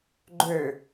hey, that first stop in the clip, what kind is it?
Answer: click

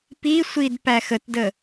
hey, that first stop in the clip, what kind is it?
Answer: plain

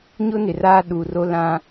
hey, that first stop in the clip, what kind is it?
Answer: implosive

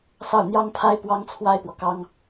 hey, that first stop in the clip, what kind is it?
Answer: aspirated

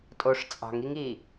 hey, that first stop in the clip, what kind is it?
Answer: ejective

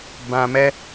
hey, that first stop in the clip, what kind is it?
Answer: plain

